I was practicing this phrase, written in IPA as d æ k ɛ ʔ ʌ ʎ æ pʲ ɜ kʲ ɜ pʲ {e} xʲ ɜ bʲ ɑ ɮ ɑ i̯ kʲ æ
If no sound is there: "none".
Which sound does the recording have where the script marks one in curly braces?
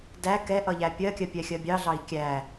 ɛ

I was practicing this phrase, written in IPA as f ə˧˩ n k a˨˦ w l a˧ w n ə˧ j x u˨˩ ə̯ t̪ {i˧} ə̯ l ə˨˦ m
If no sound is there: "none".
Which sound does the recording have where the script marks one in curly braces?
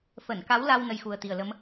i˨˩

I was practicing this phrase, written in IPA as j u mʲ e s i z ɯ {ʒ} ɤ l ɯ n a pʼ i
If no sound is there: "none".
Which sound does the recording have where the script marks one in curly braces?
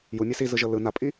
ʒ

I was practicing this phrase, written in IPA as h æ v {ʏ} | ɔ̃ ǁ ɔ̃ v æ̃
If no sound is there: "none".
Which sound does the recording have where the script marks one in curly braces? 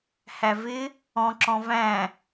ɪ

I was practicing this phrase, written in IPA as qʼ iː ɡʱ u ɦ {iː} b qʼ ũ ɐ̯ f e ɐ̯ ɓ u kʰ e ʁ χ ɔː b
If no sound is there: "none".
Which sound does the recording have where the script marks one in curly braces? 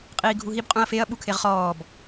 i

